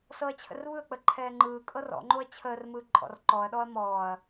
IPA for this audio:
s ɤ ɐ̯ t͡ɕʰ ə̰ r β ɯ ɐ̯ k͡p ə ǃʰ ɛː ŋ͡ǃ ɯː kʼ ɤ r ɔ̰ ŋ͡ǃ o ɐ̯ t͡ɕʰ əː r m ɯː ǃʼ ɔ̰ r ǃ ɔ ɐ̯ ɗ ɔ ɐ̯ m ɔː ɐ̯

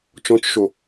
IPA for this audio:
t͡ʃ ɔ̃ t͡ʃ ʃ o

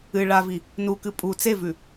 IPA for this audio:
ɨ ɭ a v i | n u k ɨ pʼ u t͡s e v ʉ

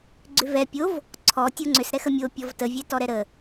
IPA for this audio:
ɡ͡ǀ ʏ v ɛ pʲ o v | ǀʰ ɔ tʲ o ŋ͡ǀ ʏ s ɾ ɛ x ə mʲ o pʲ ɔ v t ə vʲ ɛ t ɔ ɾ ɛ ɾ ə

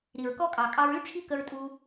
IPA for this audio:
ɾ i˨ ɹ k ɔ˦ kʼ ɑ˨ kʼ ɑ˧ ɹ y˦ ʈ͡ʂʰ i˦ k ə˧ ɹ tʼ u˧

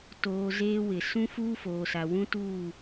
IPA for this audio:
t oː˨ z eː˦ w ɪ˨ s ũ˦ f uː˦ f oː˨ s a˨ w ũ˦ t uː˦˨

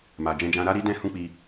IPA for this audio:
m a˨ d͡ʒ ɛ̃˧ d͡ʒ ã˧ ɾ a˧ ɾ i˧ d ɛ̃˧ h ũ˦ k͡p i˧

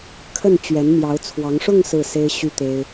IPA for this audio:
kʰ ə˥˩ n t͡ɕ ɥ ɛ˧˥ n m j ɑ˧˥ ʊ̯ t͡sʰ w ɑ˧˥ ŋ ʂ ʊ˥˧ ŋ s ɹ̩˥˩ s e˥ ɪ̯ ɕ y˥ t̪ e˥ ɪ̯

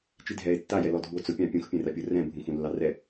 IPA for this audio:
t͡ʃ i dʱ ɛ e̯ tː a j ɛ l ɔ dʱ u o̯ t͡s ʊ pʲ ɑ̃ pʲ ũ x pʲ ɛ̃ r a pʲ ʊ r ɛ̃ bʱ ũ x ũ lː ɑ r ɛ

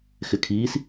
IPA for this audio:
x ɪ kʰ iː s

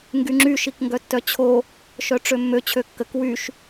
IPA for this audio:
ŋ ɡ y ŋ͡ǁ y ʃ i k ŋ ɡ œ tː œ t͡ɕʰ o | ʃ œ ʈ͡ʂ ø mː ø t͡ɕʰ ø kː ə k w y ʃ

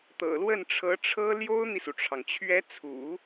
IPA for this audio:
t̪ ɤ̰˨˩ l w ə˥˩ n ʈ͡ʂʰ ɤ˧˥ ʈ͡ʂʰ ɤ˥ l j o˥ ʊ̯ n̪ i˨ s u˩ ʈ͡ʂʰ ɑ˩ ŋ t͡ɕʰ ɥ ɛ˧˥ t͡sʰ ṵ˨˩˦

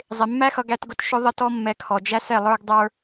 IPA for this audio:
zˤ ɪ˨ mː æ˦ x ʌ˧ ɡ æ˧ t ɡ ʊ˧ t ʃ ʊ˦ ðˤ ə˦ t ɔ˦ mː ɛ˧ kʰ ɔ˨ d͡ʒ æ˦ s ɛ˦˨ lˠ ə˞˦ ɡ dˤ ə˞˧

